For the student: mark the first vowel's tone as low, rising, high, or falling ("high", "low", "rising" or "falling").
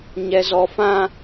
low